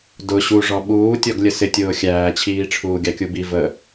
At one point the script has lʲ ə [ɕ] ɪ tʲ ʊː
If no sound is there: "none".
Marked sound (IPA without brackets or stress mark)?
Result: s